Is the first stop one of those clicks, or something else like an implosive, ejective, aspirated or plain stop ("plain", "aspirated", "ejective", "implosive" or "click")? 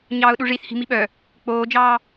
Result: implosive